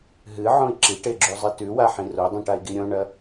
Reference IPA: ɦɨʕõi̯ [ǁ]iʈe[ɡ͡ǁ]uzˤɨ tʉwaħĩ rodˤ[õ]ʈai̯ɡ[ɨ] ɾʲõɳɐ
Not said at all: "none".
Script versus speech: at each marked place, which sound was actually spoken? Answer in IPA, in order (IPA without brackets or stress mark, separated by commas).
ǁ, ɡ͡ǁ, ũ, i